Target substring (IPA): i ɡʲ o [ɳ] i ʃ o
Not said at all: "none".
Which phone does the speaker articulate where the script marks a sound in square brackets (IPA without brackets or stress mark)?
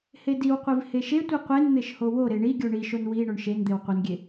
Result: ɳ